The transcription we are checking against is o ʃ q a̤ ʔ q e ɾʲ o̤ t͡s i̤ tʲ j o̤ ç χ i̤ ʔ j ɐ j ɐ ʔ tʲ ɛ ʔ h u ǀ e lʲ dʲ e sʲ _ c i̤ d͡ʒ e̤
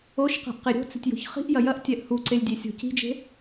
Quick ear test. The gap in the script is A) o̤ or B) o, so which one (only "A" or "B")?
A